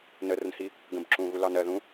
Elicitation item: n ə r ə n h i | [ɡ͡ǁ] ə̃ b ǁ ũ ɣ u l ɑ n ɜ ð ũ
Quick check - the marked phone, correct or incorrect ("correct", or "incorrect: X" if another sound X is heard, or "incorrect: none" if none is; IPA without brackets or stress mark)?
incorrect: ɡ